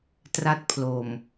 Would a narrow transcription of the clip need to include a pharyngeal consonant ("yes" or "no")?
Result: no